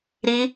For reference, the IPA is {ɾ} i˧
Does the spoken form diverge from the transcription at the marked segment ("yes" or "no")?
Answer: no